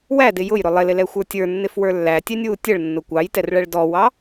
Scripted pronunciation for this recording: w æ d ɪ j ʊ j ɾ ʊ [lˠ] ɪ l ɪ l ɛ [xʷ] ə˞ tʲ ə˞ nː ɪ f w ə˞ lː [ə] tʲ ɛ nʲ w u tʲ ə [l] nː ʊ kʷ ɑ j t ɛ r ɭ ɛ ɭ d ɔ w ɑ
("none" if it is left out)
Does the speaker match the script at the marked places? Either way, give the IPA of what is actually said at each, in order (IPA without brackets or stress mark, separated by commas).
lˠ, xʷ, æ, ɭ